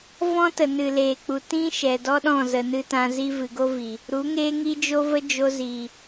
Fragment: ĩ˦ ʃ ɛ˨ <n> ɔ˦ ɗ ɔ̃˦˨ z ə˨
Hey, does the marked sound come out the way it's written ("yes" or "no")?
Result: no